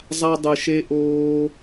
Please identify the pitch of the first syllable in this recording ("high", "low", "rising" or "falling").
high